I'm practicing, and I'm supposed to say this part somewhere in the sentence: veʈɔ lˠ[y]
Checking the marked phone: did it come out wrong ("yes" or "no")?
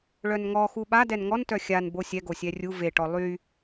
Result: no